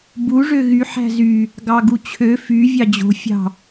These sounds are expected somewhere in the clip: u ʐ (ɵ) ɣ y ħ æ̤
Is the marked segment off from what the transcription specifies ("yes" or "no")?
yes